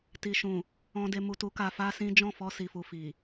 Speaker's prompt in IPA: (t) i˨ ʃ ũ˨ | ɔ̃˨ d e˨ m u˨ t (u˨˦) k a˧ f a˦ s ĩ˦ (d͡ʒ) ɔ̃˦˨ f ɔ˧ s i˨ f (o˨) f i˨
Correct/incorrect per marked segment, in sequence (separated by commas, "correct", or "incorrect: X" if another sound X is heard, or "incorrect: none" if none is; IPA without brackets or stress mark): correct, correct, correct, incorrect: u˨